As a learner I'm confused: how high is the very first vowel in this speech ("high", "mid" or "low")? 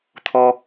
mid